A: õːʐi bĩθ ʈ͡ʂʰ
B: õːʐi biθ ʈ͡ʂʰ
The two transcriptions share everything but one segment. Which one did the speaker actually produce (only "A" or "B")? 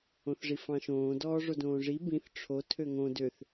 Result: A